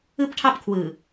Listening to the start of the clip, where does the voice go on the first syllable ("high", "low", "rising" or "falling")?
high